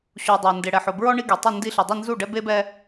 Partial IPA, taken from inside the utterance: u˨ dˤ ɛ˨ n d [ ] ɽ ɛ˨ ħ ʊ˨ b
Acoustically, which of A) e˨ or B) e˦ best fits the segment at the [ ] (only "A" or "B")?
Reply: A